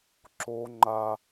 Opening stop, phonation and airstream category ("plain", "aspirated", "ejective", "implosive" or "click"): click